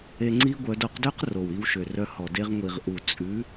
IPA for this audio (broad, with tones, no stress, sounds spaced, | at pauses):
e˧ ŋ͡ǀ i˦ ɡʷ œ˧ d o˧ q d ø˦ q r o˨ w i˧ w ʃ ø˨ r œ˧ h ɔ˨ d e˧ ʁ ŋʷ i˨ ʁ ʔ u˨ t͡sʼ ʉ˨˦